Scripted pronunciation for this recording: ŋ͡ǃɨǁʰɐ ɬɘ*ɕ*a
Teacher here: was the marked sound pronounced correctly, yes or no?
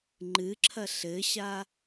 yes